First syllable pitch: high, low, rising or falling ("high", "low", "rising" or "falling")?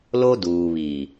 high